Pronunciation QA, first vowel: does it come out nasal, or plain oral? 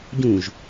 nasal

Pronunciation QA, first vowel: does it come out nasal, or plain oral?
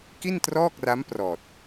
oral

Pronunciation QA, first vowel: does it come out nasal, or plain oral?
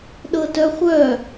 oral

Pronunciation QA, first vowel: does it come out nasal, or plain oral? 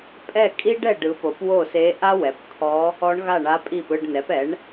oral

